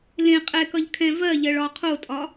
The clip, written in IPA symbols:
l ẽ qʼ ɛ k ʌ ʎ kʰ ɛ̃ v ɜ ʎ ɜ ɭ ɒ qʰ o tʼ ɒ

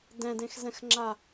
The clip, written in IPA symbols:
d ɛ̃ d ẽ x z ɛ̃ x ŋ͡ǁ a

